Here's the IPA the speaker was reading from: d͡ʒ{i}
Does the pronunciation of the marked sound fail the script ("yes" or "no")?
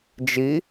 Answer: no